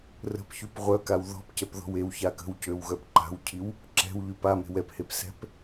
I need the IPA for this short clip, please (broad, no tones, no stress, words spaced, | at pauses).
rə̤pçyp ʁʷœkaw ðɔ̤pcɛp ðɔ̤wewça kə̤wcøw ɣœpǃa̤wcʰiw | ǁɛ̤wʎyp a me̤wɛphep sɛ̤p